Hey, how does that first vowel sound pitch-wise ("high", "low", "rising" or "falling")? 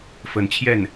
rising